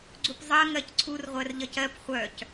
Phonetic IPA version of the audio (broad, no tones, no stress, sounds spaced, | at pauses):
ɡ͡ǀ u p zˤ ɜ ŋ ɜ c ǀʰ u r ʁʷ ɜ r ʎ ʌ c ɜ p χʷ œ c